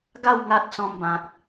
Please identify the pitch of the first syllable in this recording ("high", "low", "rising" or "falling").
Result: falling